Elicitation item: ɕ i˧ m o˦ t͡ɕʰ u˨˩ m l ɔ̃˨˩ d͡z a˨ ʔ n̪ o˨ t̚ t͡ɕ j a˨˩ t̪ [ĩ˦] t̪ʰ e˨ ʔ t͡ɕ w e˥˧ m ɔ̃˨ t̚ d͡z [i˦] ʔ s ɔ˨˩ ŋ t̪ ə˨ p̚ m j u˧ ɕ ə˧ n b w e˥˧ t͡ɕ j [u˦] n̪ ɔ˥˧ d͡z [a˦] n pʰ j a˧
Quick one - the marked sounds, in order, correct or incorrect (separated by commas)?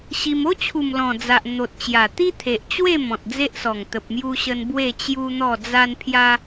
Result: incorrect, incorrect, correct, incorrect